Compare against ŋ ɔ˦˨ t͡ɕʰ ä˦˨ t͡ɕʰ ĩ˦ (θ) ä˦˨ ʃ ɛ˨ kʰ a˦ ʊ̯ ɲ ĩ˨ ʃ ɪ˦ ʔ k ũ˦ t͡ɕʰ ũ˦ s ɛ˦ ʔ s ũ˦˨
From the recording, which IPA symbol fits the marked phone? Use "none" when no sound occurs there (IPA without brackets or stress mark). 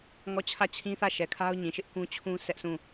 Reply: θ